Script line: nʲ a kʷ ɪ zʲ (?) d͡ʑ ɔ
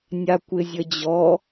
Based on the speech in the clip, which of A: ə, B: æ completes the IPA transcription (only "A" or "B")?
A